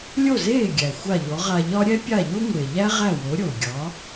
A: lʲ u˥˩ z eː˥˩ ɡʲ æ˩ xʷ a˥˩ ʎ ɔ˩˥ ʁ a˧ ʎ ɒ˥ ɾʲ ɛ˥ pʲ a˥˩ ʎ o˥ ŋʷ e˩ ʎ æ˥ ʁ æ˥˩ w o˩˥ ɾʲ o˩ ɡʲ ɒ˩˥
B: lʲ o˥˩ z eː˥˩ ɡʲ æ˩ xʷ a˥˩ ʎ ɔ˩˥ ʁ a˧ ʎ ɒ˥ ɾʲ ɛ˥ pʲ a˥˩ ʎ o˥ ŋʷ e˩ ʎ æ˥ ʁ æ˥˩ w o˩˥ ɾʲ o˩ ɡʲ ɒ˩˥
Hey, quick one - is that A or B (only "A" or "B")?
B